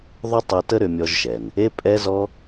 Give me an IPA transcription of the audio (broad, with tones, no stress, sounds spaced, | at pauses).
ðˤ ʏ˥ tˤ ɛ˧ t ə˥ ɾ ʏ˧ mʲ ɔ˧ ʒ ʃ ɛ˩ n | e˥ pʼ ɛ˥ z ɔ˥